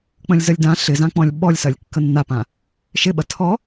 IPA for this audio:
k͡pə̃lʲzəlʲdã ɬɪzãk͡pɔ̃lʲ ɓɔlʲsɐlʲ kːənːapã | ʃɪɓɐ tʰɔ

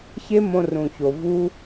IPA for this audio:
çe˦mõ˧ rũ˨ço˨ vu˦

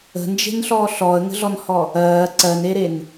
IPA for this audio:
ə̤nd͡ʒe̤nɬɔː ɬɔə̯ŋə̤ɮɔnhɔ | ɜː ǀɜneɾen

